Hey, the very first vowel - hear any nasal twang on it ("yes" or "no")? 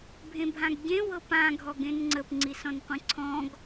yes